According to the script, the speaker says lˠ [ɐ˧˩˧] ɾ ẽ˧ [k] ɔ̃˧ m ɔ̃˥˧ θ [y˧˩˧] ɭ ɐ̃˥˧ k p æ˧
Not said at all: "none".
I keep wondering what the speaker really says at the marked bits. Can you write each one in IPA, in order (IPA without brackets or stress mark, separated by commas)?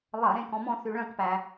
ɐ˧˩˧, k, y˧